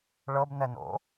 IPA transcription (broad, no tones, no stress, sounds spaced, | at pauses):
ɭ ɤ b n ɛ n o̰